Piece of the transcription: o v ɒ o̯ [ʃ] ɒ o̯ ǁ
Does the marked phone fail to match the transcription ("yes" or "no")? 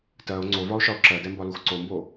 no